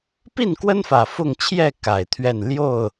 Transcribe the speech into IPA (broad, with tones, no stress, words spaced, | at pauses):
pi˥˨nkwə˦nfä˨˩ fʊ˥˨ŋ t͡ɕʰjɛ˥˨ ka˨˩ɪ̯t̪ʰɥɛ˥˨n ljo˥˨ʊ̯